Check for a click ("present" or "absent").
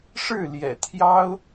absent